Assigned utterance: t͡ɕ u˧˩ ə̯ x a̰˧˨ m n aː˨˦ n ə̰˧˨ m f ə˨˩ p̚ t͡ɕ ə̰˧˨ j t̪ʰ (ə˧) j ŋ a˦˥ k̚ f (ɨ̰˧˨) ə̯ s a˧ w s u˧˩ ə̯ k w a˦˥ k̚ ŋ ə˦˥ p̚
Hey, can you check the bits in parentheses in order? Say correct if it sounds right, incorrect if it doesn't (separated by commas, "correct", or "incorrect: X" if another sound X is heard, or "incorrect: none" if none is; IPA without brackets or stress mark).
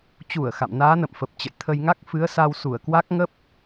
correct, incorrect: ɨ˨˦